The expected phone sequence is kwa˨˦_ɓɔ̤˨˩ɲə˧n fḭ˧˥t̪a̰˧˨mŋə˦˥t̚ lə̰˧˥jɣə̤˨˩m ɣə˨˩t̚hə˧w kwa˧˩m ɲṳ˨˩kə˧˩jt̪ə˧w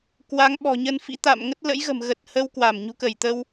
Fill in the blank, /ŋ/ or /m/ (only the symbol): ŋ